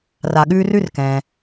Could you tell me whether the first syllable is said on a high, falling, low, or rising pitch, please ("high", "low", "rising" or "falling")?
low